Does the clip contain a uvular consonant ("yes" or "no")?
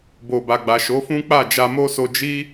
no